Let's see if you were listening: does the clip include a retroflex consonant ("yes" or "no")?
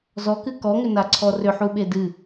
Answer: no